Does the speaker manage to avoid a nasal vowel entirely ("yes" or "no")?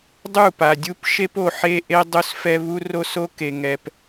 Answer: yes